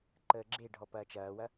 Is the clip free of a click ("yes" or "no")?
no